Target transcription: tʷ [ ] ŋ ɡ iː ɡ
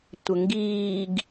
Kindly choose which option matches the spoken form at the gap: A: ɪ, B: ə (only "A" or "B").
B